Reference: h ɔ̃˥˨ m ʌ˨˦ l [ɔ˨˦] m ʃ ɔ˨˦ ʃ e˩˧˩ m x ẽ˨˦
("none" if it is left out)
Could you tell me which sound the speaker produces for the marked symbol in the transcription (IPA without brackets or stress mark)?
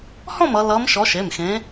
ʌ˨˦